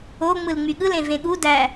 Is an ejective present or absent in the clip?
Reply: absent